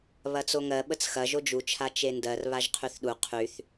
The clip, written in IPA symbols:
βɐt͡soŋɜ ɓət͡sxɐ ʒod͡ʒut͡ʃʰa t͡ʃendɜr βaʒqʰyθɗu qʰyθ

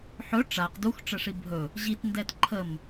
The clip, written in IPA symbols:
ħɵ ʈ͡ʂaq duxʈ͡ʂəʂi bʱɵ | ʑitndɛt ǃʰəm

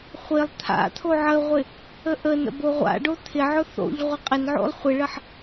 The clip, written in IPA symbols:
χʷɪlˠ t̪ʰa̰t̪ʰo ʕəʁʷɪ | əʔənə̰ boʁʷa̰ɖo t̪ʰɪʕʊ θo̰ʎ ʁʷəqʼɪnʕo̰lˠ χʷɪɭəħ

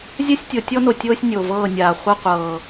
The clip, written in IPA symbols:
zʲa˦sʲtʲo˨tʲɔ˦no˨ tʲoː˦sʲnʲo˨vɤː˦˨nʲaː˨ χʷa˦qʷɤː˨

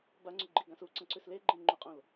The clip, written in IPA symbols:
baŋ͡ǀʉɡ͡ǃiɡãs uǀɐ̃ǀʉs leɡ͡ǃẽŋ͡ǃuqʼõl

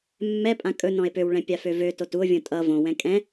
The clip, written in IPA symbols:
mːɛpʼã kʼɵ nɔ̃e̯pøwɭɛ̃ pʲaføvøtot uo̯vʲõ tʼʌ võwɛ̃ kʼɛ̃

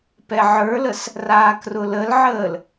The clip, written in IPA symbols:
pɛʕə˞ləs | raːkrʊləlʕəːl

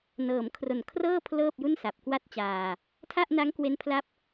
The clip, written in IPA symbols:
nɤː˩˦mkʰro˨˩nkʰrɤː˥˩ pʰlɤː˥˩p̚ ju˥˩nsa˨˩p̚kwa˥˩t̚t͡ɕaː˧ | tʰa˥˩ʔna˦˥ŋkwe˦˥n pʰla˦˥p̚

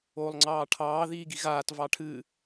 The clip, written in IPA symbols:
oːlˠŋ͡ǀɑːʈʰɑː ðiːɡiɣaːt vɑʈʰɨ

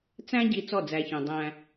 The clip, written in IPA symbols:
t͡sæ̃˦ɟi˨ t͡sɔ˦˨d͡zæ˨çœ̃˨ dˤæ̃˦

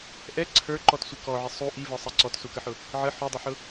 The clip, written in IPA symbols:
ʔɛ ǀʰə˞ǃɔtsʷɪ kɔʕɪ sˤu ʔivə˞sˤɛ ǀɔtsukəħʊ | ʕə ħudˤɪħʊ

